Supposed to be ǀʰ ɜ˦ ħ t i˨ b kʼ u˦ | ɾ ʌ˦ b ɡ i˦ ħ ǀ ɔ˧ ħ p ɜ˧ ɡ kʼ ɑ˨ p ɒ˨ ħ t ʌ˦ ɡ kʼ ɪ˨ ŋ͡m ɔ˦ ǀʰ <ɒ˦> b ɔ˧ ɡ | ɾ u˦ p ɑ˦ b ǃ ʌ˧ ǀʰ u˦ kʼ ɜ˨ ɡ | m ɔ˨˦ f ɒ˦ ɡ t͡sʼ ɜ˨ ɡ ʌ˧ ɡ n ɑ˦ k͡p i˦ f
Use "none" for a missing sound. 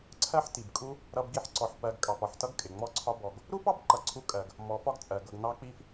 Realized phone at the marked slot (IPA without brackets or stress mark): ɒ˦